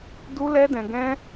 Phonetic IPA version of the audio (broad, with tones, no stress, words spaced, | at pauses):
du˦lɛ˦dɛ̃˧ɡɛ̃˦